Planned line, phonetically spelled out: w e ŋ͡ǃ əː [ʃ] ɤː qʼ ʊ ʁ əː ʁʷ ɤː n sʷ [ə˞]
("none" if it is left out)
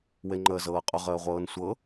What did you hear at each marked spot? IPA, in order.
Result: z, ɤ

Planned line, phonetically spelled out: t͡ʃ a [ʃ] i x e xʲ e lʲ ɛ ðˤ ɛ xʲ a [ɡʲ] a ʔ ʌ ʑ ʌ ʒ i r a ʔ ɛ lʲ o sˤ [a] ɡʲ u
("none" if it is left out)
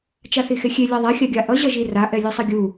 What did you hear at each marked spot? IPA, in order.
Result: θ, ɡʲ, ʌ

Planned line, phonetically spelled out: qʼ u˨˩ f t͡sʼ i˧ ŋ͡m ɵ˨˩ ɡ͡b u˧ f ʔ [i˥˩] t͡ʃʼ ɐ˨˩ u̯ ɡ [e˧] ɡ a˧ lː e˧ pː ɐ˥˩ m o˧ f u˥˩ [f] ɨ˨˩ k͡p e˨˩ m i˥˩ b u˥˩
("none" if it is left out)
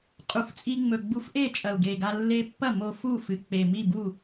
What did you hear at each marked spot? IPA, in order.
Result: e˥˩, e˨˩, f

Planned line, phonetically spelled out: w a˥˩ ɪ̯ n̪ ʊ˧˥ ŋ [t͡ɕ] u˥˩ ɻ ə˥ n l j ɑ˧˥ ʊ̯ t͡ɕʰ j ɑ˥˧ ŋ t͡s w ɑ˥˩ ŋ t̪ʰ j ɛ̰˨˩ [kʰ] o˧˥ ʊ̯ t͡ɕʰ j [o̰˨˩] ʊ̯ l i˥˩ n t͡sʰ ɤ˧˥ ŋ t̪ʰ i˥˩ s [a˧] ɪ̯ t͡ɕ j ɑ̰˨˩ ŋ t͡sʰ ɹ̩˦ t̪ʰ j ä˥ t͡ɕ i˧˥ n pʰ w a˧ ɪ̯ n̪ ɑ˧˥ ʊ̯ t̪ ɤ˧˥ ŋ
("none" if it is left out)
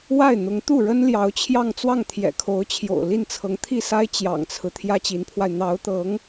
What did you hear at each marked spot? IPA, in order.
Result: t̪, kʰ, o̰˨˩, a˥

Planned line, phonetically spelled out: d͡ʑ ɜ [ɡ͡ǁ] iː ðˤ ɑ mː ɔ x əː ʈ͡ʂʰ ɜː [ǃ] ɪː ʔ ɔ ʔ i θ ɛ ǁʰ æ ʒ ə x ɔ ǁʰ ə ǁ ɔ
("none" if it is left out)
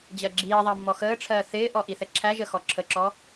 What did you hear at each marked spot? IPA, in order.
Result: ɡ͡ǁ, θ

